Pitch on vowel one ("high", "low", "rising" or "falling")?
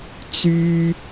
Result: high